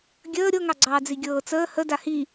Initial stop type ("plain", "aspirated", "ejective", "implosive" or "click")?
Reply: plain